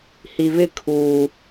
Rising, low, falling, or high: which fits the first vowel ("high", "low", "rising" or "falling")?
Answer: low